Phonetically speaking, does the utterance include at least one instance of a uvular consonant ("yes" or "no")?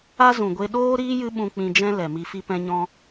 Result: no